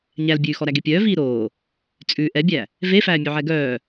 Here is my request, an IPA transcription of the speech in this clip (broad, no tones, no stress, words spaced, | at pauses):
ɲælbʲʉːxɔɾæ ɡepʲœː viːɾoː | t͡sʼʉ ʔɛbʲæ | vefæː mʲʉʕɛɡœː